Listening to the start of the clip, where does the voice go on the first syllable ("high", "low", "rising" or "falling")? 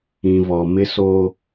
low